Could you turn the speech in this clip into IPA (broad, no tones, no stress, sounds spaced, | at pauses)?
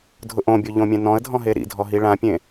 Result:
dʱ ʊ ʔ õ bʲ o ʎ õ mʲ ɛ̃ n ɔ̃ ə̯ dʱ ɔ̃ ɦ e ɾ ḭ dʱ ɔ ɦ i ɭ ã pʲ ẽ